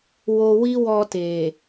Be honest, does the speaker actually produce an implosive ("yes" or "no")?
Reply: no